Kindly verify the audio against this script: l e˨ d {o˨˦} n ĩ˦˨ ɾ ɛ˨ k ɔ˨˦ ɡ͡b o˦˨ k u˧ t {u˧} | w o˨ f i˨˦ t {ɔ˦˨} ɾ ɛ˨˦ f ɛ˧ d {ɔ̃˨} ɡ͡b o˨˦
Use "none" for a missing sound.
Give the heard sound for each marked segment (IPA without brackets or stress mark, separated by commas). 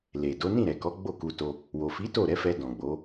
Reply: o˨˦, o˧, o˦˨, ɔ̃˨